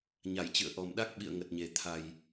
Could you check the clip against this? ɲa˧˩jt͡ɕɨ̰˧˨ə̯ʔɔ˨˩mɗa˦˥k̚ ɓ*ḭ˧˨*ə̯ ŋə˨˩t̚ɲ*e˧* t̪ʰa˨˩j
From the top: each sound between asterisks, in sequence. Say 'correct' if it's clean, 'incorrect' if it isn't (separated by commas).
correct, incorrect